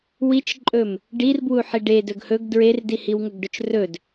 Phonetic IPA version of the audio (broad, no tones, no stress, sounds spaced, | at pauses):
w i t͡ʃ ǃʼ ɵ m | ɖ i r b w u ħ i ɖ e d ɵ ɡ h ɵ ɡ d ɹ e r d i h i w ŋ ɵ ɡ ɖ ɵ t͡ʃ r ɵ d